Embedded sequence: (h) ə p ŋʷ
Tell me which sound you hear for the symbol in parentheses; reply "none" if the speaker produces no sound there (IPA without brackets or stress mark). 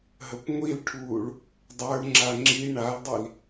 ɦ